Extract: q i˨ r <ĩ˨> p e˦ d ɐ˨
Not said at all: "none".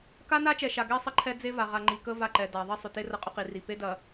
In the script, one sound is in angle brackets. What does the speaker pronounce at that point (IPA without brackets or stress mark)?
i˨